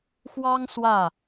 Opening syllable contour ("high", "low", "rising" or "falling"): high